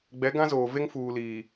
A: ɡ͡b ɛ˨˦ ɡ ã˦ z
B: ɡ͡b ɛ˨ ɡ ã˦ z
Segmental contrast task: A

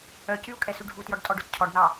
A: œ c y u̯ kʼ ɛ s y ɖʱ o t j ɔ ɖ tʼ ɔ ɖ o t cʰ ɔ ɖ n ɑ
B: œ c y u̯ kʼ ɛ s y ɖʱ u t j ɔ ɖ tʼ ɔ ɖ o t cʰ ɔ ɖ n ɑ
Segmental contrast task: B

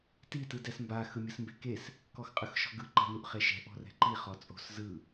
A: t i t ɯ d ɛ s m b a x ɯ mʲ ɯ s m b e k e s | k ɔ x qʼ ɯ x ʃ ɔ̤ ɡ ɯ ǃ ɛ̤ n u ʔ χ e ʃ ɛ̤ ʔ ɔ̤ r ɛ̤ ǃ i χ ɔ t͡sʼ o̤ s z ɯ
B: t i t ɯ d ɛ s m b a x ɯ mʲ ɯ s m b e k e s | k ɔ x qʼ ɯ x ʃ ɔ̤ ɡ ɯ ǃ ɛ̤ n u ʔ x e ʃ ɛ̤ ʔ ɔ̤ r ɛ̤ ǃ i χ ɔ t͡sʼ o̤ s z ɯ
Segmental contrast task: A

